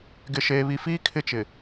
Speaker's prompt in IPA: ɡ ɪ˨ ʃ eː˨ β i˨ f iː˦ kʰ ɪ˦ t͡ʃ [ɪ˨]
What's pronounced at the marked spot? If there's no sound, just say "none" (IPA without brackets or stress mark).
ɪ˨